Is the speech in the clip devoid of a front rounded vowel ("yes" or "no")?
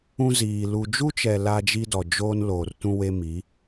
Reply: yes